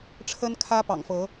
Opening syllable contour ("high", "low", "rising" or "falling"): high